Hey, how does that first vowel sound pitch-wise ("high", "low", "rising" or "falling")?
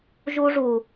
high